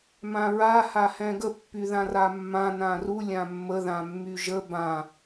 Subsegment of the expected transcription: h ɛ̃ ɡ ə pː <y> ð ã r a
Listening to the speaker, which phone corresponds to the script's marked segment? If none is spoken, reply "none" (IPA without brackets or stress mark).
y